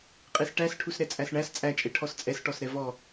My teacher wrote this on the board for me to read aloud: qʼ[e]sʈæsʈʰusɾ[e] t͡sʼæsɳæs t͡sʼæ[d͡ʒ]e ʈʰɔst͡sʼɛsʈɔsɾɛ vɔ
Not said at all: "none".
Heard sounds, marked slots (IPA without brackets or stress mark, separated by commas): e, ɛ, t͡ʃʼ